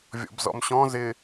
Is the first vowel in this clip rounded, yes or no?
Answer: yes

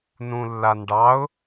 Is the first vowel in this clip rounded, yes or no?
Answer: yes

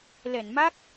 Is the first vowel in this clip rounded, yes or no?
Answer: no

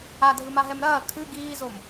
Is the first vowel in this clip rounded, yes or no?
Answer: no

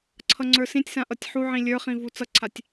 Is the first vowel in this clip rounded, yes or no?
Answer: no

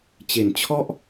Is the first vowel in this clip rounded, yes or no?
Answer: no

